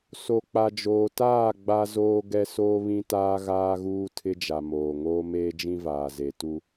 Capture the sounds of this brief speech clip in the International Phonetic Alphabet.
s o˨ k͡p a˨ d͡ʒ oː˨ t aː˦˨ ɡ͡b a˦ z oː˦ ɡ ɛ˦ s oː˦ β ĩ˦ t aː˦ ɣ aː˦ ɣ uː˦ tʰ ɪ˦ d͡ʒ a˨ m oː˨ ŋ oː˦ m eː˦ d͡ʒ ĩ˦ v aː˨ z e˨ t u˦

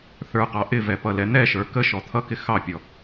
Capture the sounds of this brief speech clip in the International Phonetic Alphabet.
θ ə˞ q ɑ ʔ ɪ v ɛ p ʌ l ɛ n̪ ɛ ʃ ə˞ k ə ʃ ɔ t̪ʰ ʌ k ɪ x ɑ pʲ ɔ

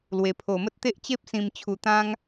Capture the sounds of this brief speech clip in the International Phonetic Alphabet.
l w e˨˩ pʰ o˨˩ m ə˦ t̚ t̪ e˦ ʔ t͡ɕ e˦ p̚ s ĩ˨˩ m t͡ɕʰ u˨˩ t̪ ã˦ ŋ

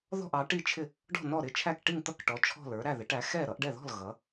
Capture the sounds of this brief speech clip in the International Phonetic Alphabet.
ð ɔ̤˥˩ ʔ ɑ˩˥ ʈ i˥˩ t͡ʃʰ ɪ˥˩ | ɖ ɔ̤˥˩ n ɔ˥˩ ɾ ɪ˥˩ t͡ʃʰ æ˥˩ k ʈ i˥˩ ŋ t̪ ʌ˥˩ k ʈ ɔ˩˥ t͡ʃʰ ɔ̤˥˩ l ə˞˩˥ ɾ æ˥˩ ð ɪ˩˥ ʈ æ˩˥ x ɛ˥˩ ɾ ʌ˩˥ ʔ ɖ ɛ˥˩ ð ɔ̤˥˩ l ɣ ʌ˩˥

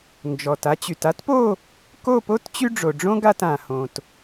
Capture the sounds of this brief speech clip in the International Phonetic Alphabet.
n d͡ʒ ɔ˩ t a˧ t͡ɕ y˩ t a˥ t p o˥˨ | k o˥˨ p o˥ t t͡ɕ y˥ ɖ͡ʐ o˩ ɖ͡ʐ õ˥ ɡ a˥˨ t ã˩ h õ˩ t

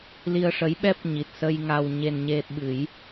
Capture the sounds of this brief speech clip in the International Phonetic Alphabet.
l i˧ ə̯ ʂ ə˧˥ j ɓ ɛ˦˥ p̚ ɲ i˨˩ t̚ s ə˧ j ŋ a˧ w ɲ e˧ n ɲ e˧ ɓ ɨ˨˩˦ j

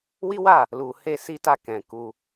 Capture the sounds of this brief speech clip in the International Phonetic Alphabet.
w i˦ w a˦˨ | l u˧ h e˦ s i˦ t a˦˨ k ɛ̃˧ k u˧

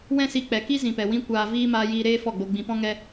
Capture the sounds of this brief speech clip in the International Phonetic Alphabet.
w ɛ̃˦ s i˧ k͡p ɛ˨ k i˦ z ĩ˨ p ɛ˨ w ĩ˧ kʷ aː˨ v iː˦ m aː˧ j iː˧ ɾ eː˦ f ɔ˦˨ ɡ͡b o˧ ɡ͡b ĩ˧ p ɔ̃˦ ŋ ɛ˦

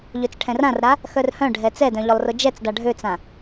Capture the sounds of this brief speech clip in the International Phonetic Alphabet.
ʎ ø t͡s ʈʰ ɛ̃ r ã r ɾ a | x œ r h œ̃ ɖʱ ɛ t͡s ɛ d œ̃ ʎ ʊ lˠ r ʊ d͡ʒ ɛ t͡s d a ɖʱ ø t͡s ã

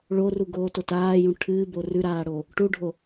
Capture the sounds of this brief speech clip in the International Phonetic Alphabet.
ɭ o r u ɡ oː t o t aː j ũ ʈʰ ɨː b o r ʉ ɾ aː ɽ o | ʈ u ɖʱ o

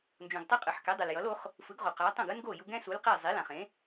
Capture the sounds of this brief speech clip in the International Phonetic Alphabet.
n d͡ʒ ũ˩ ɡ tˤ e˥ qʼ ɯ˩ ħ k ɛ˩˥ dˤ ɯ˩ l j ʌ˩˥ l o˩˥ χ | f ɯ˩˥ ɡ ʁ o˩ q a˩˥ tˤ ũ˥˩ ɡ ɯ˥ n ɡ o˥˩ j u˧ ɡ ɛ̃˥ s u˩˥ l q e˥˩ zˤ i˩˥ l ã˩ χ ẽ˩˥

